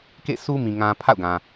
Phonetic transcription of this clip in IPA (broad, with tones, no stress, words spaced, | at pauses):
kḛ˦˨sʰu˦ mĩ˨ ŋã˨ pʰa̰˦˨ʊ̯ɡã˨